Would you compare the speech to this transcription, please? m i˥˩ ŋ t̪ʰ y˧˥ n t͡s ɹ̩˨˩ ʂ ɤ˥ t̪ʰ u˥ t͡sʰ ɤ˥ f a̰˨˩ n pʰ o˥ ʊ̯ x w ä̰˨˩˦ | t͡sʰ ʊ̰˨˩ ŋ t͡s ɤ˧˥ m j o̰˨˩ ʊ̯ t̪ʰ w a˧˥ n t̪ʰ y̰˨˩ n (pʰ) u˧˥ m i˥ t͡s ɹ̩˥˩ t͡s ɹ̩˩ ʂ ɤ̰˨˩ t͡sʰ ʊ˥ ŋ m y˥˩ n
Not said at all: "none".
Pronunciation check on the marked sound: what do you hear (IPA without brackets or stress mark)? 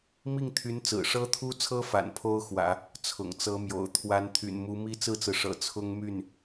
m